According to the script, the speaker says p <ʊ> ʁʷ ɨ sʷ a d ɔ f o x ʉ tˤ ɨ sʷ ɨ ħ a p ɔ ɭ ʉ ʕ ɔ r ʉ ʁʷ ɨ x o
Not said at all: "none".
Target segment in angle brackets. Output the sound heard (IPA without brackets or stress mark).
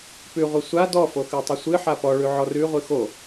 ʉ